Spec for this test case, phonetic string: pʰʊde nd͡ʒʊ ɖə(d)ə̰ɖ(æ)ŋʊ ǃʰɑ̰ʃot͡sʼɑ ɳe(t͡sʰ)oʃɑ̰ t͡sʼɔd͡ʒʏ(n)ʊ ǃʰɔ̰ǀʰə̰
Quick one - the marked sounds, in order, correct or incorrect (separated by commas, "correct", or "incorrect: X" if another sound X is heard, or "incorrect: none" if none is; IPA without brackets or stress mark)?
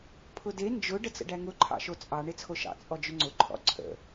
incorrect: t͡s, correct, correct, incorrect: ŋ͡ǀ